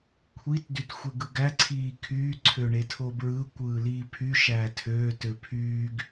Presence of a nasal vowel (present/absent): absent